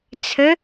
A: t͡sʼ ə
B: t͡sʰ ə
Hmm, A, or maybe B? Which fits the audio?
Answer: B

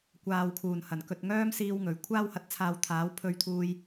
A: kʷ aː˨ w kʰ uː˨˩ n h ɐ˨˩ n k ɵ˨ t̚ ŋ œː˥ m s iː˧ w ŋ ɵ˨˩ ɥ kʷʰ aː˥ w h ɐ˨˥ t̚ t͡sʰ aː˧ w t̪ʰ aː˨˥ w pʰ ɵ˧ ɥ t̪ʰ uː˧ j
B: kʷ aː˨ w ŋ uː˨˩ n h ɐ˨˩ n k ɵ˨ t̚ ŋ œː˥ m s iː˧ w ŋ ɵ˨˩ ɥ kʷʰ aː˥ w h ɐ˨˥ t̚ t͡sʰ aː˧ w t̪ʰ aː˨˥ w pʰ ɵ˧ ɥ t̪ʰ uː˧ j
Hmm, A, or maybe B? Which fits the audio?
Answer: A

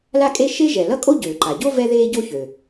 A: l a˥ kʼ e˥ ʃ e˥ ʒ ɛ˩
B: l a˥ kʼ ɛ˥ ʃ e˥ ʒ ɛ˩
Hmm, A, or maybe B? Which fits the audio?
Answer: A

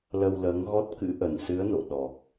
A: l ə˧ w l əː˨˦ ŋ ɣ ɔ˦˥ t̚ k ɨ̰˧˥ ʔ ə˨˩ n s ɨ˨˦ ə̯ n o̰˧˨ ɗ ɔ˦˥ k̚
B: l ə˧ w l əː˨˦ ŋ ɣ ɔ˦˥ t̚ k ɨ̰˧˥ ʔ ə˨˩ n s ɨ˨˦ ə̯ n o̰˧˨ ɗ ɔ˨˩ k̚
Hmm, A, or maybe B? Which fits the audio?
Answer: B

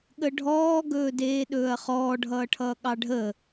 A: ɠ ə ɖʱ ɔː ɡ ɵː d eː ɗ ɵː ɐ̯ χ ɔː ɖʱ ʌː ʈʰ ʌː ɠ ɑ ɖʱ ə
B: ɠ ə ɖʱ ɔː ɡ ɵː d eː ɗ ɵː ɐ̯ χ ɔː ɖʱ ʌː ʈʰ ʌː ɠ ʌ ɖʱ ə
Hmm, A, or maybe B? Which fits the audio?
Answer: A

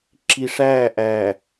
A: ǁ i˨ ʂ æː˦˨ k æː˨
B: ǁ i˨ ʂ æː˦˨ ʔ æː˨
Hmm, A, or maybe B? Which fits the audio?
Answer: B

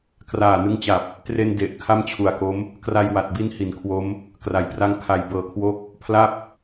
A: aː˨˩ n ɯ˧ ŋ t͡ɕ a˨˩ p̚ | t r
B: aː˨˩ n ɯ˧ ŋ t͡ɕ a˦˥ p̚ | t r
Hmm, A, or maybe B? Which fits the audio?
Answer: A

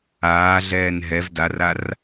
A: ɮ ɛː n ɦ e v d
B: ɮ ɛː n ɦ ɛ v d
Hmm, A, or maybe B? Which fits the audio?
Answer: B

